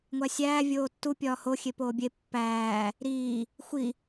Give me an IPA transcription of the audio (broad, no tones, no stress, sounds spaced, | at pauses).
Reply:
ŋʷ æ sʲ æː vʲ oː tː u pʲ ɒː h o xʲ e p oː bʲ e pː æː | ɾ iː | xʷ i